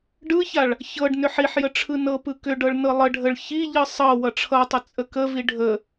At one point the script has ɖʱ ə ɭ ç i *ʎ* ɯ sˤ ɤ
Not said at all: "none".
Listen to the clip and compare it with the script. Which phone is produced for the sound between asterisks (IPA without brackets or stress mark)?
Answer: ʎ